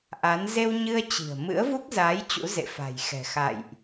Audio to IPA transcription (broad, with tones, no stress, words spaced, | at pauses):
ʔa˨˦n ze˧wɲɨ˧ə̯ t͡ɕi̤˨˩ə̯ mɨ̰˧˥ə̯vu˦˥k̚zaː˨˦j t͡ɕṵ˧˥zḛ˧˨fa̤˨˩jxɛ̤˨˩ xa̰˧˨jʔ